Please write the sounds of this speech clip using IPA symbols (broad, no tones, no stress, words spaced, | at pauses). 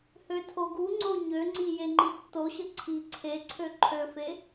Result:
høtʰoɡuŋ͡ǀo ɲøŋ͡ǀi jeŋ͡ǃitːoɕə ǀʰi ǀʰeǀʰø ǃʰøfe